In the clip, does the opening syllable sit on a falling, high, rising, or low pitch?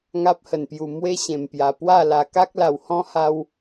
high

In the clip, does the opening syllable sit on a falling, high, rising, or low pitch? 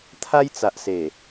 high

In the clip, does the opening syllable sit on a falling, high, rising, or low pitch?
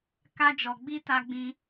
high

